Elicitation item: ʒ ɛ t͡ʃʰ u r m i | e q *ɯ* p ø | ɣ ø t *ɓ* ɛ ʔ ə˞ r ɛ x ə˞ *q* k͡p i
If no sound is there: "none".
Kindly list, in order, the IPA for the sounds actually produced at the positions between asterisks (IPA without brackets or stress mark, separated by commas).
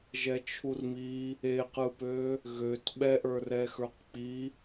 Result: ɯ, ɓ, q